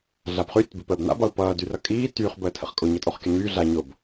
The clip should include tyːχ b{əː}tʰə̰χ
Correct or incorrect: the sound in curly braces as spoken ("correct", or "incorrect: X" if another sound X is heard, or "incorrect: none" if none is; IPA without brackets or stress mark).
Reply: correct